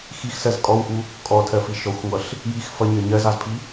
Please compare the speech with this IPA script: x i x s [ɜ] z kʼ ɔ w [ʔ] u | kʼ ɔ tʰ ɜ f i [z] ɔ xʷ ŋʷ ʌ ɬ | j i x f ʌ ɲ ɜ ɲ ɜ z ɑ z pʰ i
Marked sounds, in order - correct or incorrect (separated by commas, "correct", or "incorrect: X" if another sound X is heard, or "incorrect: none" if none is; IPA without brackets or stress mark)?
correct, correct, incorrect: ʃ